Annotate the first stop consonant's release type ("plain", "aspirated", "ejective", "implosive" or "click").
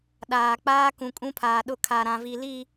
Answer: implosive